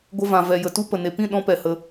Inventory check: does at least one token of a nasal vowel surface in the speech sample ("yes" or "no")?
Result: yes